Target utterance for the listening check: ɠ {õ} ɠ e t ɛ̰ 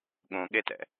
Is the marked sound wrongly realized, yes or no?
no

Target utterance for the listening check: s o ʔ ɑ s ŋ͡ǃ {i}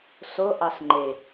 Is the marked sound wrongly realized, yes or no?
yes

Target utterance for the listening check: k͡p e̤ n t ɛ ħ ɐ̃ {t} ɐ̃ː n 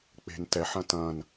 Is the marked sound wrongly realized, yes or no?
no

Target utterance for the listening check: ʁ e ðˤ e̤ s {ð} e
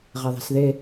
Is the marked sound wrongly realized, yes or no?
no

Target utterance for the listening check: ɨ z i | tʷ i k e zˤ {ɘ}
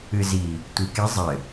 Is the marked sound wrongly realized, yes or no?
no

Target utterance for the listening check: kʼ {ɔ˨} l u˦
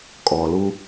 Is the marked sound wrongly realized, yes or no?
no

